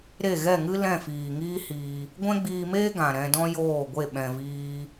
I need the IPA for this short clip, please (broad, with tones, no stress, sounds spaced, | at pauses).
ɾ e˦˨ ɣ ɛ˦˨ ŋ ɨ˦ l ɛ̃˦˨ f iː˨ ŋ iː˦ h iː˧ | ɡʷ ɛ̃˦ ɡ͡b iː˧ m eː˦ ɡ ã˨ ɾ ɛ̃˧ d ɔ̃˦ j oː˦˨ ɡʷ e˦˨ ɓ ɛ̃˧ v iː˦